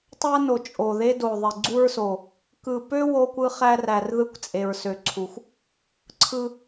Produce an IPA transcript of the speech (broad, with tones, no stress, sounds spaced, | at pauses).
tˤ æ˦ n o˨˩ t͡ʃʼ o˨˩ ð e˦ d o˨˩ ðˤ e˨˩ ɡ͡ǀ u˦ ɹ s o˨˩ | k ɯ˨˩ p ø˦ w o˦ kʷ ɯ˦ χ æ˦ r æ˨˩ r ð ɯ˦ kʷ t͡sʼ e˨˩ ɹ s ø˨˩ ǀʰ u˨˩ xʷ | ǀʰ ɯ˦